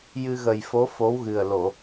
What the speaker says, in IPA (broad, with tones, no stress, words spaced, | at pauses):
jɨ˧ɣə˨˩jfo˧˥ fo˧˥wɣɨ˨˩ə̯ lo˨˩˨